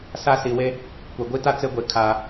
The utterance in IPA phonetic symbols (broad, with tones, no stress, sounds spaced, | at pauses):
s a˦ s i˨ w e˦ | kʷ e˨ ɡʷ i˦ t a˦ t͡s e˦ ɡʷ e˨ kʰ aː˨